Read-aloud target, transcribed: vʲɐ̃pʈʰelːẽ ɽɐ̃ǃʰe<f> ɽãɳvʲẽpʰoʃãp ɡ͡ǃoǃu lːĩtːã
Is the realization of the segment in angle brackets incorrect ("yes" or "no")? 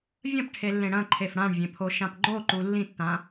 no